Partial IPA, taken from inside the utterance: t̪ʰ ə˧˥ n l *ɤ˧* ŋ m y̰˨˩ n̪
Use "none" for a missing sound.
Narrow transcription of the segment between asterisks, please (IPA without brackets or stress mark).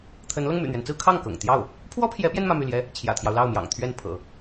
ɤ˧